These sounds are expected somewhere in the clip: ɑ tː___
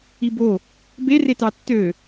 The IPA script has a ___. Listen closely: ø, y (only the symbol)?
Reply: ø